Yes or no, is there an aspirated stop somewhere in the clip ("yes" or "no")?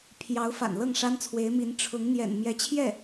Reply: yes